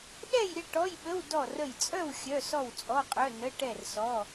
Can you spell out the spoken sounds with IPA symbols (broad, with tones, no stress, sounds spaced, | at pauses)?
ɗ ɛ˥˨ j ɾʲ ə˥˨ ʈ ɔ˧˥˧ j ɓ ə˧˥˧ w d ɔ˥˨ r ə˥˨ j t͡sʼ œ˥˨ w xʲ œ˧˥˧ s ɔ˥˨ w t͡sʼ ɔ˧˥˧ qʼ œ˧˥˧ n ə˧˥˧ ʈ ɛ˥˨ r s ɔ˧˥˧